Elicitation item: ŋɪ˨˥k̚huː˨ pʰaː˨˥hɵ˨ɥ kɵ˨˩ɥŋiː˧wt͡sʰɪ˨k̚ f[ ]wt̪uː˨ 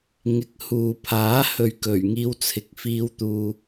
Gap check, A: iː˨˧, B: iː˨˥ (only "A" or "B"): A